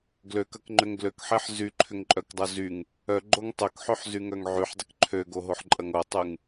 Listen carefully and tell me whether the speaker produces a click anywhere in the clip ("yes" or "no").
yes